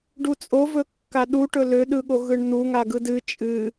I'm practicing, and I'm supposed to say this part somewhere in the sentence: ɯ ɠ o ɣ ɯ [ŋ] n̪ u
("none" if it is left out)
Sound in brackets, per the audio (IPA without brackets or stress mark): ɳ